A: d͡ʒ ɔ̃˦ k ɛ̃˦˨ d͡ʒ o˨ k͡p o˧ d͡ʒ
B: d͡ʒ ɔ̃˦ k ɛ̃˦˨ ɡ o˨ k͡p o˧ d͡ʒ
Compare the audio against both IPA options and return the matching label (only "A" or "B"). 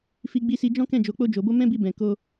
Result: A